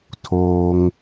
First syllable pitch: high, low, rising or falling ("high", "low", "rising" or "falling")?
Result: high